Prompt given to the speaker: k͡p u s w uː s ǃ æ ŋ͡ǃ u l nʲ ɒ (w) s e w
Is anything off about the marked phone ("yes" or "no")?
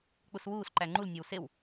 no